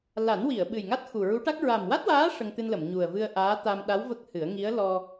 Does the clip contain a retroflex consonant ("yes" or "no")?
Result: yes